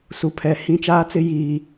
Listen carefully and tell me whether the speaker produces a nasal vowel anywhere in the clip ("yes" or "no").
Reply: yes